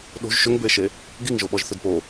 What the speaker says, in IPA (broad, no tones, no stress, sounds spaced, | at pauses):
ɗ o̤ ʒ ʃ ʏ ŋ b ʏ e̯ ʃ e | ɡ i ŋ ʒ o ɓ ɔ ʒ θ ʏ d p o